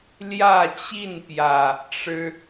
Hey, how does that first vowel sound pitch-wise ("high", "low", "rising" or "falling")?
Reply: falling